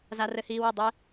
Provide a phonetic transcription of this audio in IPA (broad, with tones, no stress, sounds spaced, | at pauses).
z a˦ r ɘ˦ h iː˦ w i˥˨ dˤ e˦